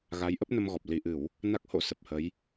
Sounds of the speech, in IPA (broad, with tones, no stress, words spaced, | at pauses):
ɣa˨˦jʔə˦˥p̚nə˧mɣɔ˨˩p̚ li˧˩ʔɨ˧˩˨w | na˦˥k̚ho̰˧˥ sə˨˩p̚hə˨˦j